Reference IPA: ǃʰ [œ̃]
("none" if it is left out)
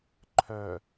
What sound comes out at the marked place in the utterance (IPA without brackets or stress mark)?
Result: œ